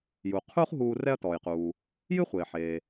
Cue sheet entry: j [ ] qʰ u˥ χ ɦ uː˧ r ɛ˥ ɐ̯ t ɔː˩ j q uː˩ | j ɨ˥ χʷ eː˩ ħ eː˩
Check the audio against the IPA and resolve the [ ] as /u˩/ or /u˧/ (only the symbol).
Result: u˩